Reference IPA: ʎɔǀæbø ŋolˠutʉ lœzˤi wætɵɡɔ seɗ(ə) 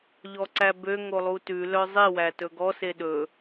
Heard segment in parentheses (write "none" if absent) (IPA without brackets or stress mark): ɵ